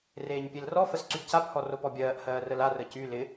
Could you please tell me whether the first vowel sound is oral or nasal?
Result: oral